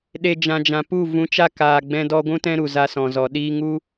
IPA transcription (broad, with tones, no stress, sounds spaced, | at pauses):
ɗ e˨ d͡ʒ ã˨ d͡ʒ ã˨ p u˦˨ v ũ˨˦ t͡ʃ a˧ k aː˨ ɡ͡b ɛ̃˧ d ɔ˧ ɡʷ ũ˦ t ɛ̃˦ ɾ u˨ z a˧ s ɔ̃˨ z ɔ˨ ɗ iː˧ ŋ u˦